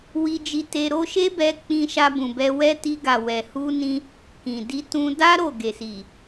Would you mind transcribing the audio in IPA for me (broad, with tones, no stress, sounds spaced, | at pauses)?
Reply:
w i˧ d͡ʒ i˧ t e˧ ɾ o˦ ʃ e˦ b ɛ˧ k͡p ĩ˧ ʃ a˧ b ũ˨ b ɛ˧ w ɛ˦ t i˧ ɡ a˨ w ɛ˨ h u˧ n ĩ˧ | k ĩ˨ d i˧ t ũ˧ d a˦ ɾ o˦˨ ɡ e˨ s i˨